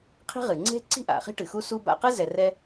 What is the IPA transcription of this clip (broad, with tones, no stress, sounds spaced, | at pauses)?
qʰ i̤˥ ʁ ɨ˩ ŋ͡ǀ e̤˥ ǀ i̤˥ ʔ a̰˩ χ i̤˥ ʈ ɨ˩ x u˥ s u˥ b a̰˧ q ɨ˥ z ɛ˧ r ɛ˥